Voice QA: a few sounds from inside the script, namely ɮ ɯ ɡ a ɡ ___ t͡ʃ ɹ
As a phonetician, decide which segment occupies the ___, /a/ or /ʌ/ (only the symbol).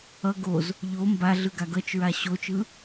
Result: ʌ